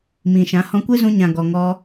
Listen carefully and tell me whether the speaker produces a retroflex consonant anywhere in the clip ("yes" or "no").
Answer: no